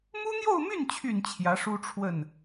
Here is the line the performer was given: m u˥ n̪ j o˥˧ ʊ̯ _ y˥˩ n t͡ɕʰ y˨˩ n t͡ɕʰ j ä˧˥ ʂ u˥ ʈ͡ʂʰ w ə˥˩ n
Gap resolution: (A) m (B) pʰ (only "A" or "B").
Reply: A